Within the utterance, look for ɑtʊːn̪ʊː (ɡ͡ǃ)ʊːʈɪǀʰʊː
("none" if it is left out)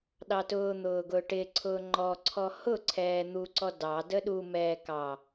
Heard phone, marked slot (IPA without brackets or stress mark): ɡ